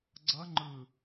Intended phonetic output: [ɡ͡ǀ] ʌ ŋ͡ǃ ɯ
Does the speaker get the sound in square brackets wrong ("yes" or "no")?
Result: no